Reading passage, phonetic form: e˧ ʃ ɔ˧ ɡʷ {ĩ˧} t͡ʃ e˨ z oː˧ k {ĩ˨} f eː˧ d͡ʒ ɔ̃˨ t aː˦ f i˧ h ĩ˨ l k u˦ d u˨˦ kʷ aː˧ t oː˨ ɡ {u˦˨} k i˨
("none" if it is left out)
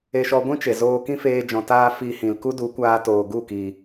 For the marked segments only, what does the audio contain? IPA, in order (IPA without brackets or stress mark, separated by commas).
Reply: ĩ˦, ĩ˦, u˦˨